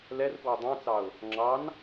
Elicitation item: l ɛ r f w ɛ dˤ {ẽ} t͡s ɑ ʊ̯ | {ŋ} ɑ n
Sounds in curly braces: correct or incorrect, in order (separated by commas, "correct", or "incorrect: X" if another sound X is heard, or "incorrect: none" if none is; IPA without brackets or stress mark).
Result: incorrect: ɛ̃, incorrect: ŋ͡ǁ